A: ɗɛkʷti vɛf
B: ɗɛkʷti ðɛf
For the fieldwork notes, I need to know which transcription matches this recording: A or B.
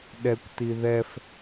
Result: B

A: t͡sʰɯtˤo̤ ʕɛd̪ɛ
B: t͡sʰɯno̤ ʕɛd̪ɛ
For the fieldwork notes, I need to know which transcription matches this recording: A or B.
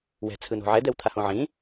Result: B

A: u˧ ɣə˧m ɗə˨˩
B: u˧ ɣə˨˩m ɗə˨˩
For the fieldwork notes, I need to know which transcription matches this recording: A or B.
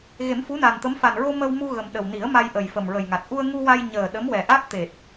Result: B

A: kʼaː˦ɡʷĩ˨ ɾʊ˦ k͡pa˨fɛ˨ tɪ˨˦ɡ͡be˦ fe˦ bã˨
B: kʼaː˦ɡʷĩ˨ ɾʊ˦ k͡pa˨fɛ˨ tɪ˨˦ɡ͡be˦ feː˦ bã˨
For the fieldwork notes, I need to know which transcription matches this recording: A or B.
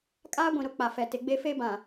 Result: A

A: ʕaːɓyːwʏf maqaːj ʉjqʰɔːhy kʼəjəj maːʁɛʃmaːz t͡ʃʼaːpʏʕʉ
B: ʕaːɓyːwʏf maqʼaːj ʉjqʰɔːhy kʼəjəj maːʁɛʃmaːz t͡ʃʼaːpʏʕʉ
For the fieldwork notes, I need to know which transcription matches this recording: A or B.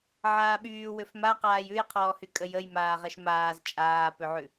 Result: A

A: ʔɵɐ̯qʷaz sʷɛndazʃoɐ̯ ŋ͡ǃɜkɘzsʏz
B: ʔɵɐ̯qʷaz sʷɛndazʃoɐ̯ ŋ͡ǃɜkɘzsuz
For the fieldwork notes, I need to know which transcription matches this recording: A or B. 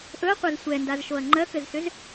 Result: A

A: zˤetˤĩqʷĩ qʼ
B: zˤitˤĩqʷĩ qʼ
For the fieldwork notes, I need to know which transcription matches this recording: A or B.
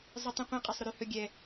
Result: B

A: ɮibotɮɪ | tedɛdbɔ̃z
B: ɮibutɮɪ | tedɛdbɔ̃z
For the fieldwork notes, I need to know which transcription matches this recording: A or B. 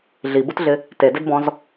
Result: B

